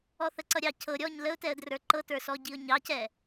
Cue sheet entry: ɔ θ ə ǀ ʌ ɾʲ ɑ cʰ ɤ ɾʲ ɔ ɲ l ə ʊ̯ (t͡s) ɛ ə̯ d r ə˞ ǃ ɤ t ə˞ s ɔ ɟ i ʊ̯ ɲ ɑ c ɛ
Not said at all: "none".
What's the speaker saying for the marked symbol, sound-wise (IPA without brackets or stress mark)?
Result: t